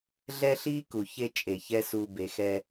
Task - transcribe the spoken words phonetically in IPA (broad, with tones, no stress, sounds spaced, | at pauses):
ɮ ɛ˦ ɬ i˦ k u˨ ç e˦ t͡ʃʼ e˨ ç ɛ˦ s u˨ b e˨ x ɛ˦